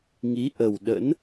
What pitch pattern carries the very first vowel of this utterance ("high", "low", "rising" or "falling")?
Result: rising